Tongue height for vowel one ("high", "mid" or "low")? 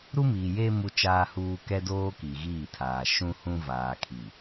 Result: high